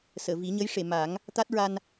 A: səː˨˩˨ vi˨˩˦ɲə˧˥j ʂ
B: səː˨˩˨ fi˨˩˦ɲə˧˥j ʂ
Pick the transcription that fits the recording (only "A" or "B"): A